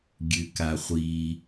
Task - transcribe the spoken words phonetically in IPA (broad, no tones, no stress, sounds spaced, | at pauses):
ɡʲ ʉ k a χʷ i